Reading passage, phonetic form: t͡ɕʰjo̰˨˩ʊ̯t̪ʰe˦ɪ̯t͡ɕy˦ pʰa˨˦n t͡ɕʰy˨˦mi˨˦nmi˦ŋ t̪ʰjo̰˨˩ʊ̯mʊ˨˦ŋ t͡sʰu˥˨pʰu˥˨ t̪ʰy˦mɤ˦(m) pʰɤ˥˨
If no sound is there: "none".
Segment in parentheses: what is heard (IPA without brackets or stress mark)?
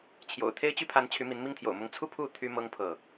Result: ŋ